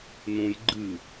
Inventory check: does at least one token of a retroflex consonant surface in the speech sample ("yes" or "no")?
no